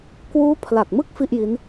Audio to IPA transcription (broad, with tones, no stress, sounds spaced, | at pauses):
k w uː˦˥ pʰ l a˨˩ k̚ m ɯ˥˩ k̚ f i˥˩ ʔ j i˦˥ n